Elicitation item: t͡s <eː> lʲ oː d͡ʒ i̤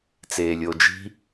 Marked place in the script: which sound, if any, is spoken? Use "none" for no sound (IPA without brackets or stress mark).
eː